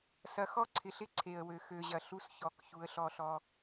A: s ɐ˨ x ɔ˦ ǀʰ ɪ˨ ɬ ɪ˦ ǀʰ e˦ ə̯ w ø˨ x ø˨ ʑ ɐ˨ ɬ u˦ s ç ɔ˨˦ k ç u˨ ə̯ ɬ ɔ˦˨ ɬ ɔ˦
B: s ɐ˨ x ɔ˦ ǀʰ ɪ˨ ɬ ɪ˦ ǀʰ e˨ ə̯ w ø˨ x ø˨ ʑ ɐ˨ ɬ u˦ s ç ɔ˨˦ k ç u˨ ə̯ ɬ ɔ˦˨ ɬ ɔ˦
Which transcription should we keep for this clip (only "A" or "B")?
B